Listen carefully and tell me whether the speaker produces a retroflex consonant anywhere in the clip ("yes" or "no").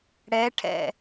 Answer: yes